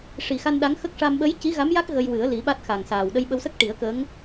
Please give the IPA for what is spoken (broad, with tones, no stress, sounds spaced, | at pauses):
ʂ i˨˩ x a˧ n ɗ a˧˥ ŋ x ə˦˥ k̚ ʂ a˧ m ɓ ə˧˥ j c i˧˥ ɣ a˧˥ m j a˦˥ k̚ ɣ ə˧ j w ɨ˨˩˦ ə̯ l i˨˩˦ ɓ a˦˥ t̚ x a˨˩ ŋ s aː˨˩ w ɗ ə˧ j ɓ ə˧ w s ə˦˥ k̚ ʈ i˨˩˦ ə̯ k ə˧˥ ŋ